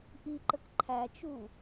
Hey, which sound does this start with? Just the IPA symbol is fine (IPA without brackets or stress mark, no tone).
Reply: ʔ